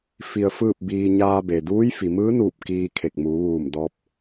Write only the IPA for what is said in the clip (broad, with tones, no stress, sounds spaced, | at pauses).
f i˧ ə̯ f ɯː˥˨ p̚ b iː˧ ɲ aː˧ b e˩ d uː˧˥ j f i˩ m ɯː˧˥ n uː˧˩ p̚ k iː˧ kʰ e˧˩ k̚ m uː˩˧ ʋ uː˧˩ m d ɔː˧ p̚